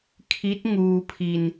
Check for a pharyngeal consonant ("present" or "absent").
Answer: absent